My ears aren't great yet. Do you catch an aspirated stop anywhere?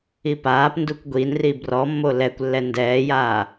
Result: no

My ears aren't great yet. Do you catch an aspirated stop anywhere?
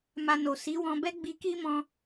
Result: no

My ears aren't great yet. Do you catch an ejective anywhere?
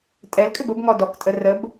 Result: yes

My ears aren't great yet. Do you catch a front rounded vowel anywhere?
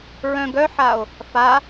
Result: yes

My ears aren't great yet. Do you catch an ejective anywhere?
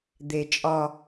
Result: yes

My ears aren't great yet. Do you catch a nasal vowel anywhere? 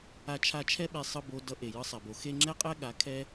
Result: no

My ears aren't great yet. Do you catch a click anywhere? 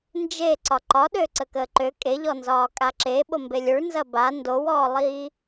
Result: yes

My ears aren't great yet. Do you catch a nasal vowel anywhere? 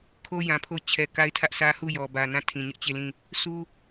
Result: yes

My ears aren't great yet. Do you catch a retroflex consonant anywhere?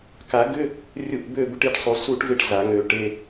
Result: yes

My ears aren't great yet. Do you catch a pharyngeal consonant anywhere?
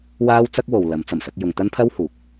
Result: no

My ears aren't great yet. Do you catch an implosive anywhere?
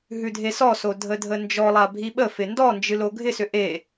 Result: yes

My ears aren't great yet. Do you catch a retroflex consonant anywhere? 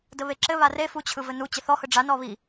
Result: yes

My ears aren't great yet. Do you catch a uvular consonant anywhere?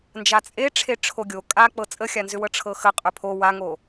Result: yes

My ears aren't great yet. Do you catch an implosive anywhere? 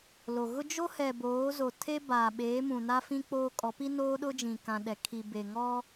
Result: yes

